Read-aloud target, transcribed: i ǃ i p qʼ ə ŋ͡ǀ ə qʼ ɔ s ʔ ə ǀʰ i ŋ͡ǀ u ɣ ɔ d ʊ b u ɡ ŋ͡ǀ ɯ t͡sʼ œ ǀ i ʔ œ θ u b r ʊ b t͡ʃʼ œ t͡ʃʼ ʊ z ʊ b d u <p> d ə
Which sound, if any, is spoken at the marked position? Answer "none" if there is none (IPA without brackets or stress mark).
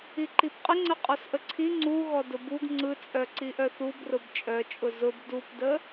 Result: p